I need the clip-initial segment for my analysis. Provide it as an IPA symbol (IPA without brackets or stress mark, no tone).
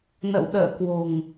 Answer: n